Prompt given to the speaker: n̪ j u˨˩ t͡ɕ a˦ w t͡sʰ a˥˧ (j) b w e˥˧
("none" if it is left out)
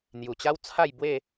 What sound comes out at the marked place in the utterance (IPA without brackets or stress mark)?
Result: j